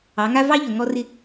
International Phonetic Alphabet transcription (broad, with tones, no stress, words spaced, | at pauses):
ɑ˨˦ŋa˦ vɑ˦ʎɵ˨ ŋɔ˦rɪ˦